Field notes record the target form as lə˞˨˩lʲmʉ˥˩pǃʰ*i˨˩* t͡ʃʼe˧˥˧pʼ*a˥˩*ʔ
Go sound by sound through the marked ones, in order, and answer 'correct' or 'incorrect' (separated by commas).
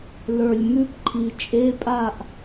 correct, correct